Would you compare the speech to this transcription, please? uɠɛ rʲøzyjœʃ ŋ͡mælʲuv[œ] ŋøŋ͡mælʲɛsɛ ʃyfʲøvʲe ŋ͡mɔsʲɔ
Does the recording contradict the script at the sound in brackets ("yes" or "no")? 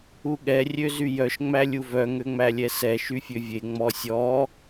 no